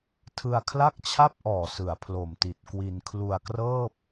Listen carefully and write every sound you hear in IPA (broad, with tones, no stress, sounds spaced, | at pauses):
tʰ ɯ˧ a̯ kʰ l a˥˩ k̚ t͡ɕʰ a˥˩ p̚ ʔ ɔː˨˩ s ɯ˨˩ a̯ pʰ l o˨˩ m t i˨˩ t̚ k w i˧ n kʰ l u˧ a̯ k r ɤː˥˩ p̚